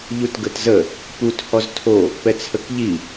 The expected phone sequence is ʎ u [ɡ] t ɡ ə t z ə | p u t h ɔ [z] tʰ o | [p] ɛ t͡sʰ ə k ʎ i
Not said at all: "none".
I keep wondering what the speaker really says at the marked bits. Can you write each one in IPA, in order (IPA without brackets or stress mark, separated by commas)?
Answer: none, z, p